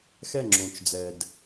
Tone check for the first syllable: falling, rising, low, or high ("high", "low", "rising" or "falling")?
falling